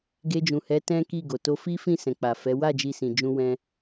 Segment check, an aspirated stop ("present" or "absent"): absent